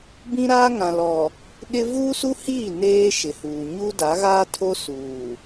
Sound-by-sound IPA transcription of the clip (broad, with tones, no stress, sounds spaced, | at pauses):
b ĩ˦ ɾ aː˦ ŋ ã˨ l ɔ˨ | ɗ ɪ˦ v uː˦ s u˦ h iː˦˨ n eː˦ ʃ ɪ˨ h uː˨ ɲ uː˦ d a˨˦ ɣ aː˦ tʰ o˦ s uː˨